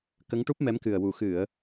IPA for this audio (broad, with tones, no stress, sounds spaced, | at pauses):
k ə˧˥ ŋ ʈ u˦˥ p̚ m ɛ˧˥ m k ɨ˨˩ ə̯ w u˨˩˨ x ɨ˨˩˨ ə̯